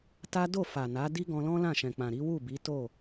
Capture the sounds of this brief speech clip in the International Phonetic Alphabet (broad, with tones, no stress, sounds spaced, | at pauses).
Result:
t a˦ d o˦˨ f a˨ n a˨˦ d i˦ ɡ ɔ̃˧ l ɔ̃˦ l ã˦˨ ʃ ɛ̃˨ k͡p ã˨ ɾ i˨˦ w u˦˨ b i˨˦ t o˦˨